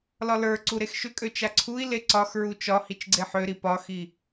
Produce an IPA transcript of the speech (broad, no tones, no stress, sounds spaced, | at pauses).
l ɒ l ə˞ ǀ u ɾ e x ʃ ʏ kʼ ø t͡ʃ a ǀʰ u i̯ l e ǀ ɒ x ɹ u t͡ʃ ɒ h i t͡ʃ ɡ͡ǀ e ħ ø ɾ i p ɒ x i